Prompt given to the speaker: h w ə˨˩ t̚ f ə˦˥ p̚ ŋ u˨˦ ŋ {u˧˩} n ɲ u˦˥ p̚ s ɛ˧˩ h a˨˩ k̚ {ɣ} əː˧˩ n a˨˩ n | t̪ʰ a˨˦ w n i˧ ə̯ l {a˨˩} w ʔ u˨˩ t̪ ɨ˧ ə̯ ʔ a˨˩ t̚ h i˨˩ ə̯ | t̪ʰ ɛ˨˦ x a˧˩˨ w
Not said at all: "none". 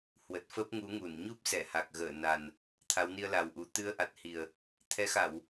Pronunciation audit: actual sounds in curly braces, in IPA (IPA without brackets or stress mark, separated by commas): u˧˩, ɣ, a˨˩